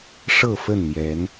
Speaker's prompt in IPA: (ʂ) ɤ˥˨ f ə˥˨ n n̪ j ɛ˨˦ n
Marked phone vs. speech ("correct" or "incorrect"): correct